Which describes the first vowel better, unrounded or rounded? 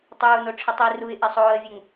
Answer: rounded